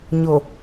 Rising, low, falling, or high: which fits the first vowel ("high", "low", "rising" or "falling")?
low